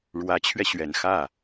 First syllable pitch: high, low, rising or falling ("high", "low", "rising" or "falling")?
rising